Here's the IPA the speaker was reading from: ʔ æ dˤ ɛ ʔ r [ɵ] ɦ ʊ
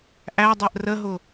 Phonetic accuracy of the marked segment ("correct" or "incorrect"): incorrect